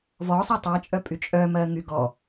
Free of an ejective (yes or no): no